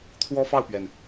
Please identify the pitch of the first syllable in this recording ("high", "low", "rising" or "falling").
high